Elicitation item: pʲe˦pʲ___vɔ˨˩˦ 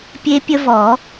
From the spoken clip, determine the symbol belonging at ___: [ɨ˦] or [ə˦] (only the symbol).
ə˦